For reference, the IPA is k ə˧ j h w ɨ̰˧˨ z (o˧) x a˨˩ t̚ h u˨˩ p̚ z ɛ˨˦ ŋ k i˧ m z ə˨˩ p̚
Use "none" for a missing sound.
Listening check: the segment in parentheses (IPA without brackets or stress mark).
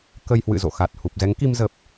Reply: o̰˧˨